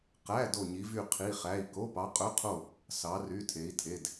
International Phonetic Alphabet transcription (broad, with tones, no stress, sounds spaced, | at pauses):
q æ˧˥˧ d o˥˧ ɲ i˧˥ v y˥˧ qʰ i˧˥˧ χ æ˧˥˧ i̯ k o˧˥˧ p ɑ˧˥ qʼ ɵ˧˥˧ qʰ o˥˧ | s ɑ˧˥ r y˧˥˧ tʰ e˧˥ i̯ tʰ e˧˥˧ d